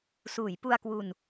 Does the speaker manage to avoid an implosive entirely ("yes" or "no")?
yes